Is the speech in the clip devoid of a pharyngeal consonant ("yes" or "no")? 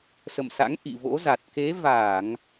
yes